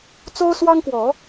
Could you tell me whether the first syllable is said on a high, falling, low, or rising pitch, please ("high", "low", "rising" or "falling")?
high